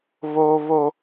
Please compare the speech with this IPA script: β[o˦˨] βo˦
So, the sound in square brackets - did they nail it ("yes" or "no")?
no